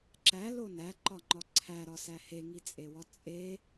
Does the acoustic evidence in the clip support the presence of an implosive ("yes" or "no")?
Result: no